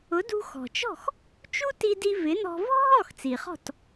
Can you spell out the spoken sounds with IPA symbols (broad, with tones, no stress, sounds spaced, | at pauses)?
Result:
ʊ˩˥ d ṳ˧ x ɔ̤˩ t͡ʃ ɔ̤˥˩ x | t͡ʃ u˥ t i˧ d i˧ v ɪ˩˥ n ɔ̤˧ v ɔ̤˥ ɦ ɔ˥˩ x t͡s i˩ χ ɔ̤˥˩ t